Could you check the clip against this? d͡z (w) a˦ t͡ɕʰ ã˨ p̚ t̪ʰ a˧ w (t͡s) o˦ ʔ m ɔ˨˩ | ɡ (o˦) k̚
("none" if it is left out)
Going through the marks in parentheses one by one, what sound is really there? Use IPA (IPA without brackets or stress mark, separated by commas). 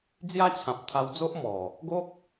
j, d͡z, o˦